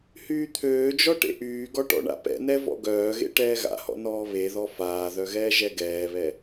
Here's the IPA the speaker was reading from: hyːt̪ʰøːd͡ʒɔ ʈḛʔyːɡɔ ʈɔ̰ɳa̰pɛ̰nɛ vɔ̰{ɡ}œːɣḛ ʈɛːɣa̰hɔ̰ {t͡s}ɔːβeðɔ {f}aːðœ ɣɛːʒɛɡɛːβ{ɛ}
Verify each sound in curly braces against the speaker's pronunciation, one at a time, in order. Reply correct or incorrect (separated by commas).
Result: correct, incorrect, correct, correct